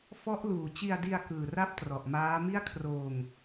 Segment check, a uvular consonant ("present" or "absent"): absent